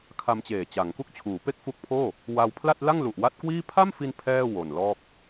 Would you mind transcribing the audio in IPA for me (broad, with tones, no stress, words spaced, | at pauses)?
kʰa˧mt͡ɕeː˨˩ t͡ɕa˩˦ŋku˥˩k̚ t͡ɕʰuː˩˦ pe˥˩k̚fu˦˥k̚pʰoː˥˩ | wa˧wpʰla˥˩t̚ la˥˩ŋlu˨˩ʔwa˦˥t̚kwiː˥˩ pʰa˥˩mfi˧n pʰɛː˥˩ wo˨˩nlɔː˥˩k̚